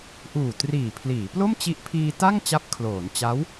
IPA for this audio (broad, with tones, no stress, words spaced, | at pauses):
ʔuː˨˩triː˨˩pʰliː˩˦ plo˥˩mt͡ɕi˦˥ʔ pʰiː˧ta˥˩ŋ t͡ɕa˦˥p̚kʰloː˩˦n t͡ɕa˦˥w